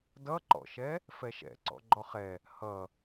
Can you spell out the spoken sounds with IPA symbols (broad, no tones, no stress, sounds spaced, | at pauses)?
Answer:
d ʌ ǃ ɔ̰ ʃ ɛ | f ɛ ʃ ɛ̰ ǀ ɔ̰ ɡ͡ǃ ɔ χ ɛ | h ʌ